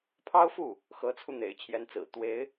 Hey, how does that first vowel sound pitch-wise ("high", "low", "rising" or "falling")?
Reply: high